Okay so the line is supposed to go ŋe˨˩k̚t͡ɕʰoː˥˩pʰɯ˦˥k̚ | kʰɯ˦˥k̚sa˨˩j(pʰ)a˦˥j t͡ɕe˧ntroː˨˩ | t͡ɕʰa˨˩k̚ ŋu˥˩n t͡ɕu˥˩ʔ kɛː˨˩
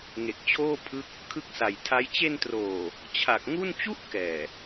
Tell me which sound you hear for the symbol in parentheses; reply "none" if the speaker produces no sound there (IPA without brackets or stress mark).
tʰ